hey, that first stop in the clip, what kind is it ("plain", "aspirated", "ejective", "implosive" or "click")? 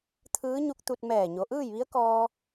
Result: aspirated